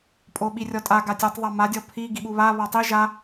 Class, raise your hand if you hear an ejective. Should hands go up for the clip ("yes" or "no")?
yes